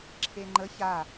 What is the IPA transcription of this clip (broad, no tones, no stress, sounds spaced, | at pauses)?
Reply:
ǁʰ e ŋ͡ǃ ə ç a